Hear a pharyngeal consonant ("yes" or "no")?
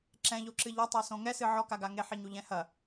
yes